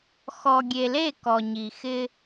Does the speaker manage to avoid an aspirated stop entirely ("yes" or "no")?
yes